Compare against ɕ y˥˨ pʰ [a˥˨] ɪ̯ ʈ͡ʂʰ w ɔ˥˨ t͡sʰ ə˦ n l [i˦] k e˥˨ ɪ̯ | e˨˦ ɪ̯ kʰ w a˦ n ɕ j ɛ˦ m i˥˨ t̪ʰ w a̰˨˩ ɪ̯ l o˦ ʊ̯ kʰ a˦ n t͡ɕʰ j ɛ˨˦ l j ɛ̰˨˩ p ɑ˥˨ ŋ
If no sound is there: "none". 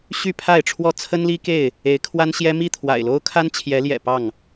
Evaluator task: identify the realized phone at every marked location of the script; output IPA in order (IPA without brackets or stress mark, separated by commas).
a˥˨, i˦